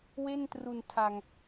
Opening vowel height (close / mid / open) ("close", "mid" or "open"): mid